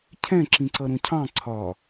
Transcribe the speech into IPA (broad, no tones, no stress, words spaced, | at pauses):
cʰɛ̃ ǁĩǀʌɾũcʰɑ̃ ǀʰɒ